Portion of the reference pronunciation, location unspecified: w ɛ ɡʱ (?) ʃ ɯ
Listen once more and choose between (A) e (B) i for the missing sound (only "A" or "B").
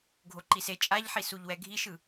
B